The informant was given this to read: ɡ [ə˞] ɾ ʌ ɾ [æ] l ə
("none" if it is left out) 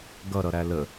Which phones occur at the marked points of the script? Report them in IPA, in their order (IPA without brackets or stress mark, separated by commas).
ʌ, æ